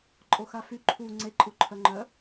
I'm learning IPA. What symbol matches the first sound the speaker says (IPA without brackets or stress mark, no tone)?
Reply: ǃʼ